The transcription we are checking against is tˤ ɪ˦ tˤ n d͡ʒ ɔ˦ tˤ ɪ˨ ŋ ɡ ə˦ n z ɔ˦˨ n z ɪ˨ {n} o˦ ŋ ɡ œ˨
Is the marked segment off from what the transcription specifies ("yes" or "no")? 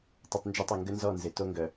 yes